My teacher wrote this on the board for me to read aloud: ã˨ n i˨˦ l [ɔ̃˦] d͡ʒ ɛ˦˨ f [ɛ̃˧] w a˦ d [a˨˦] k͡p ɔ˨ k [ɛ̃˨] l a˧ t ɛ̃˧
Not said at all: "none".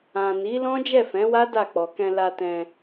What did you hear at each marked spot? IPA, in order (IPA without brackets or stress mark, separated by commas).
ɔ̃˦, ɛ̃˨˦, a˦˨, ɛ̃˧